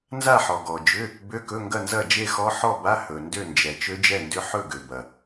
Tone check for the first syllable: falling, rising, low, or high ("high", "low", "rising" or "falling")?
falling